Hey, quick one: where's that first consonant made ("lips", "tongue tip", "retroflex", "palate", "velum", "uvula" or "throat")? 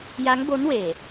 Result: palate